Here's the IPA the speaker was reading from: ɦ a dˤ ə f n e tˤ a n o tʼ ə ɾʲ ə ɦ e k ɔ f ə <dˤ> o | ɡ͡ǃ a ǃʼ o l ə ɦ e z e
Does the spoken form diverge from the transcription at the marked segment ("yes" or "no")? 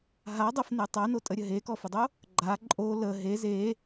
no